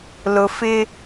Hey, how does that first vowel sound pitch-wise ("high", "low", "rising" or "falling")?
low